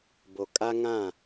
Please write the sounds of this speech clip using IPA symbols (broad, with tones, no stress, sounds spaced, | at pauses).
b o˨ kʼ a˦ ŋ ã˦˨